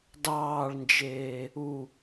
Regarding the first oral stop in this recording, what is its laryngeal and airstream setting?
plain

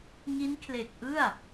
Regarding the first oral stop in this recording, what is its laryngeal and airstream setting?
aspirated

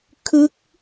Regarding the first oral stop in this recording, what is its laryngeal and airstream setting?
aspirated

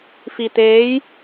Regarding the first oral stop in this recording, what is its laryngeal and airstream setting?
plain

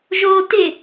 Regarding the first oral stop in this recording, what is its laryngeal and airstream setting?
plain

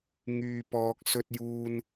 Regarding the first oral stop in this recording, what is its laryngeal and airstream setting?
plain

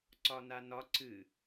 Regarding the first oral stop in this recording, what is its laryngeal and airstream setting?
click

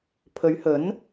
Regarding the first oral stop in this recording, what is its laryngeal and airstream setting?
aspirated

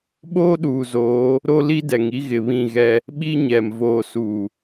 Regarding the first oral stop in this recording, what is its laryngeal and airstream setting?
implosive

